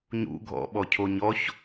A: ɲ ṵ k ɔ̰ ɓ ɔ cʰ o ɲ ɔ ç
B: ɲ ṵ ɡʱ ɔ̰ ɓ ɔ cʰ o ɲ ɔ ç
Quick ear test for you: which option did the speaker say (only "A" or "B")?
B